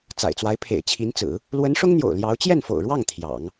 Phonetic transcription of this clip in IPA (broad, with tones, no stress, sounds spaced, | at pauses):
t͡s a̰˨˩ ɪ̯ t͡s w a˧˥ ɪ̯ pʰ ḛ˨˩ ɪ̯ t͡ɕʰ i˧˥ n t͡s ɹ̩˨˩˦ | l w ə˧˥ n ʂ ʊ˥ ŋ n̪ j o̰˨˩ ʊ̯ l j ɑ˧˥ ʊ̯ t͡ɕ j ɛ˥˩ n f o̰˨˩ ʊ̯ ɻ w ɑ˥˩ ŋ t̪ʰ j ɑ̰˨˩˦ ŋ